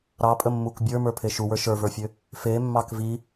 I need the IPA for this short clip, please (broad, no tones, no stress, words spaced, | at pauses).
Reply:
ɾɑpʼəmːuk bʲə˞mə˞pʰe ʃuwə˞ ʃə˞və˞fʲø | femːɑk vi